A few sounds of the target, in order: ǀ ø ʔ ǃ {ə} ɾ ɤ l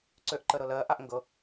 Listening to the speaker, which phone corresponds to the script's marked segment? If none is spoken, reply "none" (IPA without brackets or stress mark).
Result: ə